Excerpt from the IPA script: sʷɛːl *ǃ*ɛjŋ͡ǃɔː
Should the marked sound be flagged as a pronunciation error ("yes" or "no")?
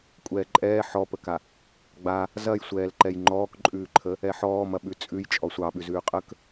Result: no